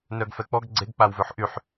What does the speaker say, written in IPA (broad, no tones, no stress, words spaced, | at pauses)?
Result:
nœɡfɛk͡pɔɡ ɡ͡ǀeɡk͡pawvøħ ʔyħ